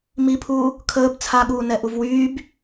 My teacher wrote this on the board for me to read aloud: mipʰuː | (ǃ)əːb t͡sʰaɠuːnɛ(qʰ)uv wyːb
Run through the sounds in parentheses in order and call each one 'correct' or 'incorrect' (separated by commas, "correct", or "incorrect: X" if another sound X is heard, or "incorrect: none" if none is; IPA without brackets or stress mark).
incorrect: kʰ, incorrect: ʔ